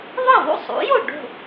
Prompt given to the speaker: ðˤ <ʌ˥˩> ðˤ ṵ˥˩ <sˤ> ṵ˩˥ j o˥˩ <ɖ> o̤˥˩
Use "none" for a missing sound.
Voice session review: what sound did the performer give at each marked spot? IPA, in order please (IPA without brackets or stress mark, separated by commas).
ʌ˥˩, sˤ, ɖ